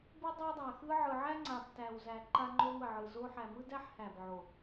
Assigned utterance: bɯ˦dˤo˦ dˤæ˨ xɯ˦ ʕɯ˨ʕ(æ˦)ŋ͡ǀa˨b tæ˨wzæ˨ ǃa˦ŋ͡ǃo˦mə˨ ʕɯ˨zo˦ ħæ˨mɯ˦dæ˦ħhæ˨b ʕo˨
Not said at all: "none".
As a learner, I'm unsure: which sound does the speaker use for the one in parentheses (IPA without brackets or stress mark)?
æ˦